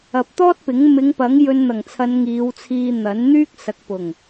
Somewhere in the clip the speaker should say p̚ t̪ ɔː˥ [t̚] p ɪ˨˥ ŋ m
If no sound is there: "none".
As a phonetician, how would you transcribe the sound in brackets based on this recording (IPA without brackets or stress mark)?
t̚